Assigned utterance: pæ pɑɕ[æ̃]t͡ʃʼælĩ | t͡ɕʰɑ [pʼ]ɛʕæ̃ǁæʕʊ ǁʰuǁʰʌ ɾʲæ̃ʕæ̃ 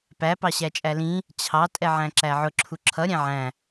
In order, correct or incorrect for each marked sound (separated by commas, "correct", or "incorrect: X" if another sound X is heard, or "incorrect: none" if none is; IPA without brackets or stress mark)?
incorrect: æ, incorrect: tʼ